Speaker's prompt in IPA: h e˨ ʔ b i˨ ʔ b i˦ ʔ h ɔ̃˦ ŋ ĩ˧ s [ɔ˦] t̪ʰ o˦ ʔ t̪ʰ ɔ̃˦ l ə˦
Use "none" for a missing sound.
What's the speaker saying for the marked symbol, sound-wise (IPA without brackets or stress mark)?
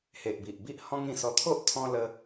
ɔ˧